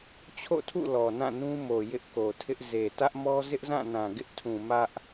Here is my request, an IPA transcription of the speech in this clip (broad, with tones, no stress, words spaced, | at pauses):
t͡ɕʰo̰˦˨tʰṵ˦˨ lɔ˨nã˦˨nũ˦mo˨ jɪ˦ʔko˨tʰɪ˦ʔ ze˨ tä˦ʔmɔ˦ zɪ˦ʔzã˦˨nã˨ ɡɪ˦ʔtʰũ˨ mä˦ʔ